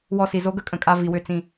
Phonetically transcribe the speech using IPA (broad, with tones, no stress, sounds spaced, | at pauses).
w ɔ˧˩ s i˩ z o˨˥ ɡ ə˨˥ kʼ ə̃˩ kʼ a˧ v i˩ w ʏ˧˩ t͡s ĩ˧˩